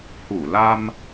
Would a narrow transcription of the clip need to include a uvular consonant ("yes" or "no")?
no